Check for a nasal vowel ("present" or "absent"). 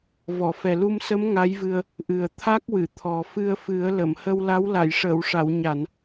absent